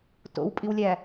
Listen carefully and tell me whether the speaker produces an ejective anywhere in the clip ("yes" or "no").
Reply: yes